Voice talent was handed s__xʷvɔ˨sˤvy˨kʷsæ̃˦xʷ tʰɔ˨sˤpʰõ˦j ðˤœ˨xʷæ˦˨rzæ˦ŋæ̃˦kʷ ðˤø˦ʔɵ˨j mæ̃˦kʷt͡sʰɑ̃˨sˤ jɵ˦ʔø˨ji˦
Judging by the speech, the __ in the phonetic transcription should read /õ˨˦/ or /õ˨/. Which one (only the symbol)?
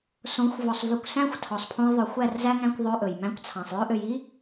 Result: õ˨˦